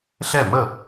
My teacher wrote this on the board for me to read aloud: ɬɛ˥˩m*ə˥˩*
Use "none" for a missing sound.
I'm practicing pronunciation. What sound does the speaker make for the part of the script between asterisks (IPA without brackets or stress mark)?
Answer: ə˥˩